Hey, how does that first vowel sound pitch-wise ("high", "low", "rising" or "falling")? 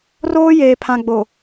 high